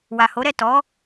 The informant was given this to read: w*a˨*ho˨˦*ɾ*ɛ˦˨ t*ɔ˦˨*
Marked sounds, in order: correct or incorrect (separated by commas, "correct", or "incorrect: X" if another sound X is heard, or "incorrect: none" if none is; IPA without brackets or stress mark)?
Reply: correct, correct, incorrect: ɔ˨˦